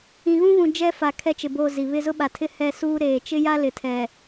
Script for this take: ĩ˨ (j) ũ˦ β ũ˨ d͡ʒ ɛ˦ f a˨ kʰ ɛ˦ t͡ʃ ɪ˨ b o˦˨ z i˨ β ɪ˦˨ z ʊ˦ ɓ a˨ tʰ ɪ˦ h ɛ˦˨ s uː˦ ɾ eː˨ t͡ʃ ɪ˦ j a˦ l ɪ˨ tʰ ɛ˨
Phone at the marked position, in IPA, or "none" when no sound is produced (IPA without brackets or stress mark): ɣ